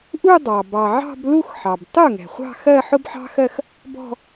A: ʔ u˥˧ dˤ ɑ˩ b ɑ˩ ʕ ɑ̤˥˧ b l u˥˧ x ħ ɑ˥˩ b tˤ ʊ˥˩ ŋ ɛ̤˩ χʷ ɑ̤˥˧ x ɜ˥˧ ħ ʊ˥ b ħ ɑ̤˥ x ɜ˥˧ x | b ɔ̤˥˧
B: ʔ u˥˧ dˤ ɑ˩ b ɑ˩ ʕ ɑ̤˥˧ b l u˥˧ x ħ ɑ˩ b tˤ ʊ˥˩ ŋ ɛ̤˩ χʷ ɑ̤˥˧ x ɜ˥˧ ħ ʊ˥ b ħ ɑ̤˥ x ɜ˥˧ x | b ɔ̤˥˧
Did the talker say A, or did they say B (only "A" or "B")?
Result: B